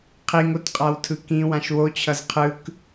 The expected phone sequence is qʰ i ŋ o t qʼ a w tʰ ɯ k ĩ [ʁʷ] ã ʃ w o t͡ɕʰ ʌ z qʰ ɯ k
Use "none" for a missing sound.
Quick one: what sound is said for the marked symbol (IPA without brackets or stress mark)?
w